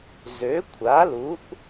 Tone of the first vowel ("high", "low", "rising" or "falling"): rising